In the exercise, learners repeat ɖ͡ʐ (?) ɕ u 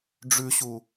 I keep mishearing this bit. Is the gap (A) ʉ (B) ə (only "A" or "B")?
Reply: A